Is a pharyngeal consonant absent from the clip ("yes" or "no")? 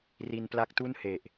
yes